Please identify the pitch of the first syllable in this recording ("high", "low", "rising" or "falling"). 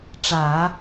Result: low